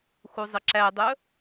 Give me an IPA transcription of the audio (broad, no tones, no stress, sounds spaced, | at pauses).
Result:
x u zˤ ə ǁ æ dˤ œ